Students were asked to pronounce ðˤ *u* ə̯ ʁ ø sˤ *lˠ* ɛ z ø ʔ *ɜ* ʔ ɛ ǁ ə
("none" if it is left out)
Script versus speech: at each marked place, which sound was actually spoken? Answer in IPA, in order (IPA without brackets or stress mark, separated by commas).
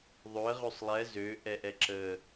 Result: ø, lˠ, ɛ